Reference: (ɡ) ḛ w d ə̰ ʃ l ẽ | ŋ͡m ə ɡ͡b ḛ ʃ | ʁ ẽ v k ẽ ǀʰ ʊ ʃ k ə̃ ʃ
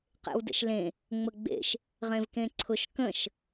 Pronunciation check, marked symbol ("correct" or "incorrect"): incorrect